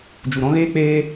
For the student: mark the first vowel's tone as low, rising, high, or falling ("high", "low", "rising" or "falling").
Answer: low